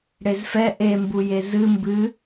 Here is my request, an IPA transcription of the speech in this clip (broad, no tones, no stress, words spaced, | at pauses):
ɽezfɛ ʔembuje zɨ mbɨ